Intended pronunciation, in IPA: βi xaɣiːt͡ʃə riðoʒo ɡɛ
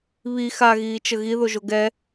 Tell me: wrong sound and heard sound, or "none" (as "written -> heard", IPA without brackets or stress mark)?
r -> ɣ